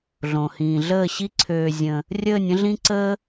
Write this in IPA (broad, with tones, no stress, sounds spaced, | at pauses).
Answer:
ɮ õ˨ h ĩː˨ ɮ əː˦˨ ɕ i˦ ǀʰ øː˧ zʲ ə̃˧ | rʲ əː˦˨ nʲ ə̃˦ ɮ ĩ˦ ǀ əː˦